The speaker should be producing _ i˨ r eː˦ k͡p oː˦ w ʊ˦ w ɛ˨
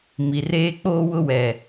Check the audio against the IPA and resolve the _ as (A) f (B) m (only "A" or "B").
B